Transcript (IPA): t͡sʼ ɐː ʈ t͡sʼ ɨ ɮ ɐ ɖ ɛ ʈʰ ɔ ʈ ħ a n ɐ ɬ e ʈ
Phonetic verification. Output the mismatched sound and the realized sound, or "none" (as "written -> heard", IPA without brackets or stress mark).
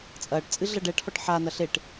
none